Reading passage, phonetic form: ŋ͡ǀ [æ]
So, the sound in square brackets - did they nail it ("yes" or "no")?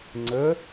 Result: no